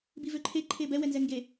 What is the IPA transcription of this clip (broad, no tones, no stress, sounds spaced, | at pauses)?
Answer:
b i v ø ǃʰ e ǃʰ e b ɛ w ɛ n z ɛ ŋ ɡ e